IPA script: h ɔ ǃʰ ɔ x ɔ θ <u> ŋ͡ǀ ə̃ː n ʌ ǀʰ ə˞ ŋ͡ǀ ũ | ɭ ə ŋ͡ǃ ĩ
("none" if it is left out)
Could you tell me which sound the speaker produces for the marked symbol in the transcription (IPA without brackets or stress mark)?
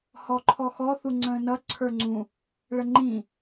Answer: u